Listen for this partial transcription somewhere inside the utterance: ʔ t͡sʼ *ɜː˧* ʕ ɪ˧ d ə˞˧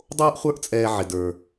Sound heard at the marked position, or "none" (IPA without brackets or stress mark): ɛː˧